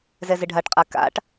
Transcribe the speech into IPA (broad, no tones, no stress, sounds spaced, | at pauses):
z ɛ z ɪ ɖʱ a ʈ qʼ a k a̰ ʈ